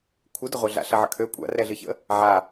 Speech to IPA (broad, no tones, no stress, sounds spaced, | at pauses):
kʷʰ ɨ d ə ʁʷ œ ɮ a̰ ɬ ɐ ʕ ə̰ kʰ ø kʷʼ a̰ r ɛ ɮ ɨ ç ə̰ | ʕ a